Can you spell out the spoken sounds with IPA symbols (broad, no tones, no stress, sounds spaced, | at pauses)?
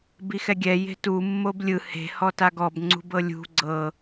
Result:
b i x ɛ ɡʲ ɛ j e̤ t u mː o b lʲ ɯ h e̤ h ɔ t a ɡ ɔ b ŋ͡ǀ ṳ b ɤ lʲ ṳ ɡ͡ǀ ɤ